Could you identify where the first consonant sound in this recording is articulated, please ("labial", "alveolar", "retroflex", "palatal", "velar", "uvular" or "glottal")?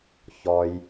palatal